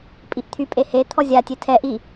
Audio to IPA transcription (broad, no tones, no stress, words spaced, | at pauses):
pʼiʔt̪ʰy pʼehe t̪ʰɔzʲa tʲetʰɛ ʔi